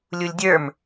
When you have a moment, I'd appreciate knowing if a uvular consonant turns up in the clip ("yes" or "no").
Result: no